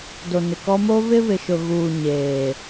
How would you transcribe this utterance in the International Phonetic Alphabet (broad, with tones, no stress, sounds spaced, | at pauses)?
d o˨ n ɪ˨ k ɔ˦ m o˦ β ɪ˦ β ɪ˨ ʃ ʊ˨ ɣ uː˨ ɲ eː˨